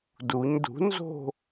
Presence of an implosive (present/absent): absent